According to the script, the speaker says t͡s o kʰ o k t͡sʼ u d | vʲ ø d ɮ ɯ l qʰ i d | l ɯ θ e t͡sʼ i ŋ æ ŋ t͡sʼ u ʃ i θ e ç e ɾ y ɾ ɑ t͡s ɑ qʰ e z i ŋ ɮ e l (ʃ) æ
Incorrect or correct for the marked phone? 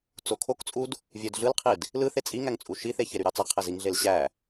incorrect: ɕ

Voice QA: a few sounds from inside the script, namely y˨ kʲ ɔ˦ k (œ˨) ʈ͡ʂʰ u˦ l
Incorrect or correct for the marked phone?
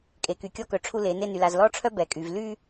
correct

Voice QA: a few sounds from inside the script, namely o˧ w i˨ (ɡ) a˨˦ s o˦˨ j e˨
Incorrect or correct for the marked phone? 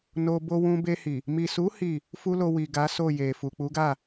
correct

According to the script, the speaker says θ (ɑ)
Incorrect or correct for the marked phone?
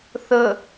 incorrect: ə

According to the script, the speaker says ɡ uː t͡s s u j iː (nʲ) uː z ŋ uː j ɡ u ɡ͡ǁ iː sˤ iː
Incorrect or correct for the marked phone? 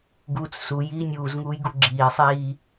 correct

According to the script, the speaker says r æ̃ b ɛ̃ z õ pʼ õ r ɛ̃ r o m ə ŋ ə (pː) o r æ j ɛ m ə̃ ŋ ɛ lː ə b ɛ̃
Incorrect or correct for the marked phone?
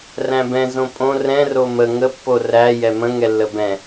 correct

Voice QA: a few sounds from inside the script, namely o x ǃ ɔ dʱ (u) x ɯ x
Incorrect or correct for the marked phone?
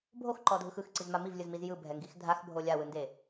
incorrect: ɯ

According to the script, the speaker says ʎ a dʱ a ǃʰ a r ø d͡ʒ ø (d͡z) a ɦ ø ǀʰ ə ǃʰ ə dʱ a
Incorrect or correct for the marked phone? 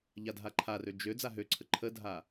correct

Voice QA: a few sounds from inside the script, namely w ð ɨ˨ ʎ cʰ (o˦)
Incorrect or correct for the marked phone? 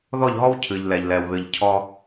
incorrect: ɔ˦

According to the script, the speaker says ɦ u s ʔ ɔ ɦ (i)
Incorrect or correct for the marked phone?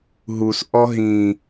incorrect: ĩ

